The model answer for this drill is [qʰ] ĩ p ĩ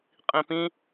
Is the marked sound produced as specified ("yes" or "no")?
no